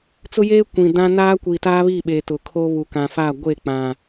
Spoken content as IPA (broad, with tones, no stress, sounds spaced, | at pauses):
t͡s ʊ˦ j eː˦ kʷ ĩ˨ d ã˦ n aː˦ kʷ i˨ t aː˦ β i˦˨ ɓ eː˨ t ʊ˨ kʰ oː˦ β uː˨ k ã˨ f aː˦˨ ɡʷ eː˦˨ k͡p ã˨